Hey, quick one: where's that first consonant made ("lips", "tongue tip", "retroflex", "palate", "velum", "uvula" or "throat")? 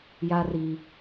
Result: palate